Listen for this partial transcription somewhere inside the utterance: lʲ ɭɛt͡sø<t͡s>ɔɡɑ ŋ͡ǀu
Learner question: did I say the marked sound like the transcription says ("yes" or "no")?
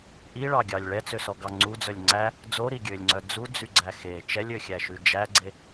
no